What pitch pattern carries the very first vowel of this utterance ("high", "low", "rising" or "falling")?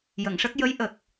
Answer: low